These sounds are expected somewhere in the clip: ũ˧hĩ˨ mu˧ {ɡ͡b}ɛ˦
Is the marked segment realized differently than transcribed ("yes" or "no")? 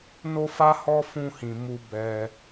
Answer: yes